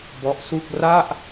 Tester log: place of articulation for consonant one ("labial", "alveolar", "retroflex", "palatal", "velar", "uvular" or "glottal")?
labial